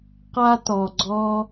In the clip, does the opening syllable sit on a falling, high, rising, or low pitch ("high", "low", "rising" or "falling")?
high